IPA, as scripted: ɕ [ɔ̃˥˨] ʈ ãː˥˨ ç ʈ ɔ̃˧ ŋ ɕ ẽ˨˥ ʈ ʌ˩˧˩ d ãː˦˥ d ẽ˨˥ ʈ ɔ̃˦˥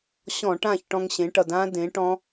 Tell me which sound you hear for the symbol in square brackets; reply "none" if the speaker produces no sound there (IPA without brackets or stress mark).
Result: ɔ̃˧˩˧